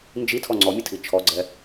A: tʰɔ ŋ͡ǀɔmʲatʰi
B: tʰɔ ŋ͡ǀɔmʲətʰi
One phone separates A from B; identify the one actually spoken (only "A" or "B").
B